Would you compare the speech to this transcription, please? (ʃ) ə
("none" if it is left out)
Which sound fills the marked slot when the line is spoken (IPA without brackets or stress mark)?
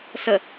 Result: s